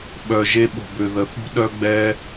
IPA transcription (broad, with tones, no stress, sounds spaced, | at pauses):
ɓ œ˨ ʒ e˧ ɓ o̤˨ b ø˨ ð ə˨ θ ṳ˦ ɗ œ˦ ɡ͡b ɛ˦